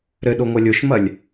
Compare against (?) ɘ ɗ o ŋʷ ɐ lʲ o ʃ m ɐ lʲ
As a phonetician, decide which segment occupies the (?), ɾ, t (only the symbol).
ɾ